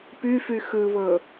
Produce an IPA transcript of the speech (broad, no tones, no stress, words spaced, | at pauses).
pyfy xɯβɤ